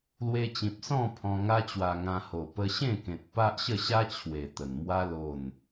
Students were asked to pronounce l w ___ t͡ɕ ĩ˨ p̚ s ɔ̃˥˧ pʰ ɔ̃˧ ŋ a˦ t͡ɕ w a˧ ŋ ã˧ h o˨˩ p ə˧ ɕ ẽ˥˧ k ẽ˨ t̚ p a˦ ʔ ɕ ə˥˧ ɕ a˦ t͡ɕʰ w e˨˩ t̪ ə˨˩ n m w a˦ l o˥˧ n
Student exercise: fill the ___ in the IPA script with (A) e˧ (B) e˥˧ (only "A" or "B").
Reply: A